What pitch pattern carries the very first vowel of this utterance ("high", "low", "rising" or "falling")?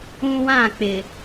high